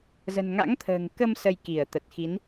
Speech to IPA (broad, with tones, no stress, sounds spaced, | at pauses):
z ə̤˨˩ n ŋ a̰˧˥ ŋ t̪ʰ ə̤ː˨˩ ŋ k ə˧ m s ə˧ j k i˧˩ ə̯ t̪ ə˨˩ t̚ x i˨˦ n